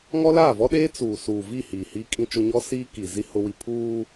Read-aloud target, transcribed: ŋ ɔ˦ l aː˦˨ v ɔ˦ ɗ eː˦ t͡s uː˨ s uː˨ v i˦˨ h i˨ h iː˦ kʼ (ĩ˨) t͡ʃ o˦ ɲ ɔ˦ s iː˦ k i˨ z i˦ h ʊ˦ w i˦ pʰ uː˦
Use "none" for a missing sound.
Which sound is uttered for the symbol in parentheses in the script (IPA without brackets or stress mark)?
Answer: ĩ˦